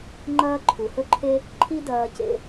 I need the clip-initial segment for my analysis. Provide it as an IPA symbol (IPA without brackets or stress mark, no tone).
ŋ͡ǃ